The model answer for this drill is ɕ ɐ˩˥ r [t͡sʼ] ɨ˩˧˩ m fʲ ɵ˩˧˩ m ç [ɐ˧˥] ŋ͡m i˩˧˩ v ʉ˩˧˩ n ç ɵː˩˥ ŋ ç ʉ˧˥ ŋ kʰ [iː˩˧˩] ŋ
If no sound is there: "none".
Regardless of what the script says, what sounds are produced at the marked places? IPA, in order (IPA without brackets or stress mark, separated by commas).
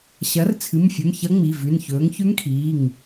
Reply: t͡sʰ, ɐ˧˥, iː˩˧˩